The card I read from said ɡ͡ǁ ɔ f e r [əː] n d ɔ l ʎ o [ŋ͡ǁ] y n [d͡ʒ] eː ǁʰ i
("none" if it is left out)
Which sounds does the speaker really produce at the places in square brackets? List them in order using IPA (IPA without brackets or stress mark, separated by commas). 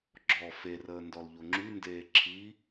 əː, ŋ͡ǁ, d